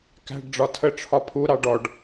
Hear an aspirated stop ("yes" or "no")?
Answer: yes